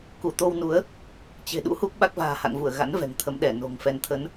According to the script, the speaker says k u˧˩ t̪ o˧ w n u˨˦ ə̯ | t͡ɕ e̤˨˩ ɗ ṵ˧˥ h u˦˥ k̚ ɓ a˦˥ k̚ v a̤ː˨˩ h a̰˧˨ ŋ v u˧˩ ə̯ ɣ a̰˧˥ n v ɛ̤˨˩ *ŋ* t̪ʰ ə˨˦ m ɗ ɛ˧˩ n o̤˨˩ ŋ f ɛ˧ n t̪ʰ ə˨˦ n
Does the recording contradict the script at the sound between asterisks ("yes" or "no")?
no